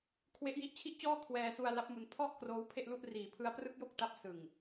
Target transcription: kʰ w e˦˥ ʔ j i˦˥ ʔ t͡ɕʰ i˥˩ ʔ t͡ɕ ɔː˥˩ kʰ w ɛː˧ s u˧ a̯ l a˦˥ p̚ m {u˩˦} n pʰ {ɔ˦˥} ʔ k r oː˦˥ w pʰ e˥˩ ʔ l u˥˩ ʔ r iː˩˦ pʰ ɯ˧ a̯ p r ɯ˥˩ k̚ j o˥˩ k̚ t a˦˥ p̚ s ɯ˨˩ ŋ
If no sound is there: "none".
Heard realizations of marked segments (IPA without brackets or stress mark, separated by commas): u˧, ɔ˥˩